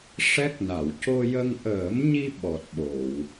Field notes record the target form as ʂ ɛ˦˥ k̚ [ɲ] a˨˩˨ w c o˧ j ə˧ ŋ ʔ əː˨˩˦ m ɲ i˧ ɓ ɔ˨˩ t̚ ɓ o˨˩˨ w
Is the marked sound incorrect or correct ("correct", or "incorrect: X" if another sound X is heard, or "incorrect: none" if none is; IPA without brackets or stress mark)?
incorrect: n